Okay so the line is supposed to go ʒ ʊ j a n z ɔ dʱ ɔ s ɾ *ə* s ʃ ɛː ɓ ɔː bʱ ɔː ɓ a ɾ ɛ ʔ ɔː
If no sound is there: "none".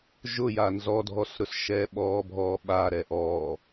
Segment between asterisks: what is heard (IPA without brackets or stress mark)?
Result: ʊ